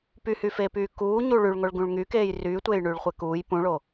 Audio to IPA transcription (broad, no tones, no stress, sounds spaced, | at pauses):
p y h y f eː p yː k uː ɲ u ɭ y ɭ ŋ o ɭ ɡ ũ ɭ ŋ y k eː j r yː tʷ eː j ɳ yː ɭ χʷ ɛ k uː j p ũ ɭ o